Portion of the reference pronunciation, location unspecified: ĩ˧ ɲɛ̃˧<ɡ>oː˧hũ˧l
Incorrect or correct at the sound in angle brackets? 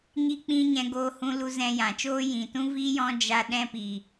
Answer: correct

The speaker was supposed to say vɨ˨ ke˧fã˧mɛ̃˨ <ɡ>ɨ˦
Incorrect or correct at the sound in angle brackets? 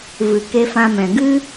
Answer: correct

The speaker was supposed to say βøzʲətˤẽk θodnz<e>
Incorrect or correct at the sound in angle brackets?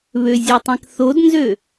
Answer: incorrect: ø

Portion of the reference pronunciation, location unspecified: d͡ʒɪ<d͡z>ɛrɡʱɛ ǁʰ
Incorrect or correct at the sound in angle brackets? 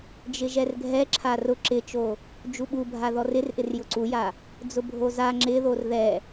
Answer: incorrect: ʒ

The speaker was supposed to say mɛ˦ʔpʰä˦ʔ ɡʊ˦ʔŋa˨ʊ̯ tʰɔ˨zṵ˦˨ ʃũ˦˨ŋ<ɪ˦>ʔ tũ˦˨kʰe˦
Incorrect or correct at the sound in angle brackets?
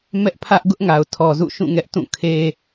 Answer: incorrect: ɛ˦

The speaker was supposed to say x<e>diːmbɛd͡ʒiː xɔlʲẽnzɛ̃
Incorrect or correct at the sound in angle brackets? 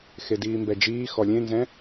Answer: correct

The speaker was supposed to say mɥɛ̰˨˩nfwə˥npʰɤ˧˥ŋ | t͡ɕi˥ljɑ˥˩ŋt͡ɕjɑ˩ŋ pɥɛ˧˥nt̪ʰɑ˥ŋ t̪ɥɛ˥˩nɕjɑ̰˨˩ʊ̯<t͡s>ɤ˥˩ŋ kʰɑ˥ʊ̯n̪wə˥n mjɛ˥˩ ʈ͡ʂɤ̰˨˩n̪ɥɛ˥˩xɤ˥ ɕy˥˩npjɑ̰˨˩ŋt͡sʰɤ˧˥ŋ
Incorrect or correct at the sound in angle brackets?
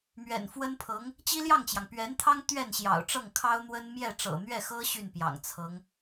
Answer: incorrect: ʈ͡ʂ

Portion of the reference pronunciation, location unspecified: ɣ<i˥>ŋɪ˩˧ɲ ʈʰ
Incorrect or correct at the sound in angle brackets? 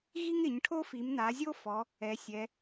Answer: correct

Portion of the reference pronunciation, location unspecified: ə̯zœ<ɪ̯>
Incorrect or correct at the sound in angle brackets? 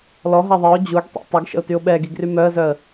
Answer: incorrect: ə̯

